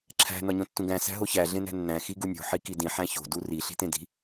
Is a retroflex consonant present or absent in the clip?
absent